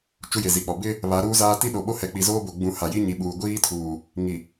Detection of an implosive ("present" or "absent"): present